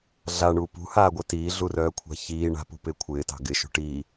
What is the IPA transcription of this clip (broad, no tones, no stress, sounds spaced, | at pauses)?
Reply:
ɮ a ɳ uː p ṳ h aː ɡʷ œ t iː ɮ u r œː kʷʰ a̤ ç iː ɳ a̤ p ṳ p ɪː kʷʰ ɪː t ɑ̤ ɡ ɪ ʃ ṳ ʈ iː